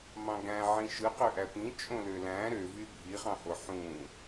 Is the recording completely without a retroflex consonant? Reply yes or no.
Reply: yes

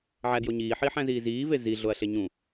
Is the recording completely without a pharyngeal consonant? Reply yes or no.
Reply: no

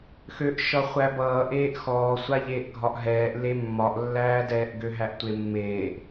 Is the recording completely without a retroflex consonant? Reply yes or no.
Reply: yes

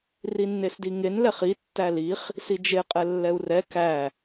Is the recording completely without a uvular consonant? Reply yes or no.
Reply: no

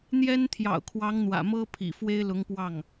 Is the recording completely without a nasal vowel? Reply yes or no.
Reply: yes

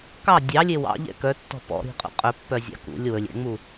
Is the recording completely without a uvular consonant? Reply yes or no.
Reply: no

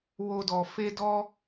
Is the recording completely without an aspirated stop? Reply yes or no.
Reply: yes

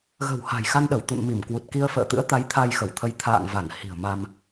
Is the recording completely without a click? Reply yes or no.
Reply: yes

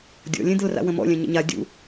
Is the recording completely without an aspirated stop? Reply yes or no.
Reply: yes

